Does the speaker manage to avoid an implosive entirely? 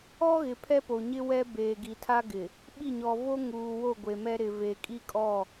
no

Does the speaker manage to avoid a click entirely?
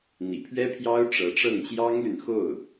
yes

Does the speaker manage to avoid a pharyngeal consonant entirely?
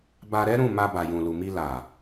yes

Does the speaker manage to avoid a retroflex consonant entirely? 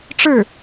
no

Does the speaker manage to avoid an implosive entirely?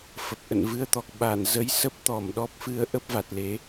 no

